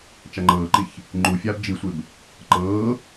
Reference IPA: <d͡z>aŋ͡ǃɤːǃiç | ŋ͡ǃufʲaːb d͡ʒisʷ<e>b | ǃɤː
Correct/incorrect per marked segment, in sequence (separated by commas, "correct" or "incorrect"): incorrect, correct